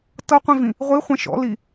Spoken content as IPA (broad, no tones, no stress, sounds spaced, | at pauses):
t ɤ qʷ ĩ v ĩ | ʁʷ i χʷ ɛ̃ ʃ ɔ̰ l i